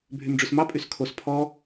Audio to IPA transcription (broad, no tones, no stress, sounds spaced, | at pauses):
bʱ y m ɖ͡ʐ ʉ s m ɑ pʼ y s kʰ o s pʰ ɔ